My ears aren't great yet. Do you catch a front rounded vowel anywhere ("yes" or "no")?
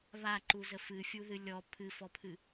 no